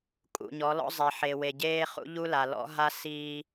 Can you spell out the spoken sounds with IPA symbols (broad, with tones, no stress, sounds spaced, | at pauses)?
kʼ ṵ˨ ɲ ɔ˨˦ l ɔ̰˦ zˤ e˨ ħ e˨ w e˨ ɟ eː˦ χ ṵ˦ ʎ u˦ l a˨ l ɔ̰˦ ɦ a˦ s iː˦